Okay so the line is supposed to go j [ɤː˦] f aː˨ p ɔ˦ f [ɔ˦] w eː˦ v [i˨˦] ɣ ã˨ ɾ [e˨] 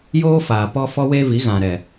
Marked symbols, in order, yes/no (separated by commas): no, yes, yes, no